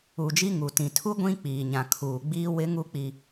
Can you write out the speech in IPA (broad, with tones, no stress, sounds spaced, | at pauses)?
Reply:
u˨ d͡ʒ i˦ ŋ u˨ t ĩ˨ tʰ u˦ ɡʷ ĩ˦ k͡p iː˨ ɲ ã˨ kʰ uː˨ ɡ͡b iː˦ w ɪ˦ ŋ u˦ k͡p i˦